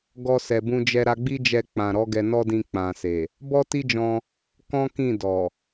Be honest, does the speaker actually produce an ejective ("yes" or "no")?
no